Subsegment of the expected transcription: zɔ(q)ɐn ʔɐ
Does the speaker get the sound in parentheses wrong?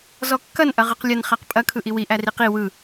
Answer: yes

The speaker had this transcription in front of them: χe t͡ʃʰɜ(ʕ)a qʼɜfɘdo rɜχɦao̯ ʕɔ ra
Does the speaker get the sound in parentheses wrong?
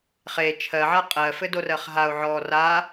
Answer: no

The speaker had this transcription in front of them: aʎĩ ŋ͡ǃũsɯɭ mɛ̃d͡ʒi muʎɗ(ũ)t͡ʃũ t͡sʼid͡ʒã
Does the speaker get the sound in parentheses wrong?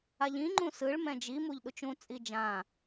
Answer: yes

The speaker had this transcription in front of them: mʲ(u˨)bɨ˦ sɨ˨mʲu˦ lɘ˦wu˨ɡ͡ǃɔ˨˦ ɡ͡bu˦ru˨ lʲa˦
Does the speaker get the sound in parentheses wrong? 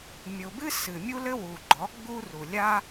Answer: yes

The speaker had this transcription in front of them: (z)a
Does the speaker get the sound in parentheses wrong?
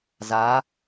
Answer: no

